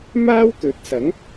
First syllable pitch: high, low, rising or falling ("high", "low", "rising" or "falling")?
high